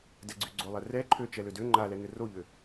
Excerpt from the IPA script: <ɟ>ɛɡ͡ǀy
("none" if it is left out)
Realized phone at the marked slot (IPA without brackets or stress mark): d